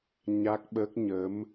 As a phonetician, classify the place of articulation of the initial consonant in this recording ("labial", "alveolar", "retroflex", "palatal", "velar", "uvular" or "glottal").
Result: palatal